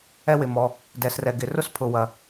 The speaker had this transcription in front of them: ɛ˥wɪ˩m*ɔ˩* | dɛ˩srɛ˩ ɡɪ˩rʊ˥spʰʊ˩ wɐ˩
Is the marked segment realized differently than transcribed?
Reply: no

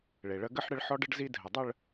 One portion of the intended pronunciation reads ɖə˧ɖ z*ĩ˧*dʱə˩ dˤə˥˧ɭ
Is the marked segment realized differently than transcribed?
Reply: yes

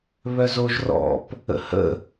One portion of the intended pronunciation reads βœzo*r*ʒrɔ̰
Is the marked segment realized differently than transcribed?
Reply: yes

